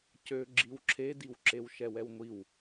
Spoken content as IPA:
c ø ɡ͡ǁ i w ǁʰ e d i w ǁ e w ʃ ɛ w ɛ w ŋʷ i w

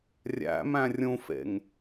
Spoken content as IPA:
rʲ æ̰ m æ̃ rʲ ũ f ḛ ŋ

